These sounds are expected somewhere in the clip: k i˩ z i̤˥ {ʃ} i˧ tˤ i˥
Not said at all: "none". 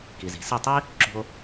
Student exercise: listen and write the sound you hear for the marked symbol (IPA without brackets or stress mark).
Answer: s